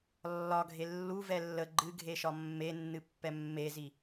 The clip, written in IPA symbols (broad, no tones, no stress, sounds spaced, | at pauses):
lː ɒ ɡʱ e lː u v ɛ lː ə ɡ͡ǃ ɨ ɡʱ e ʃ ɒ mː e nː ɨ pː ɛ mː e z i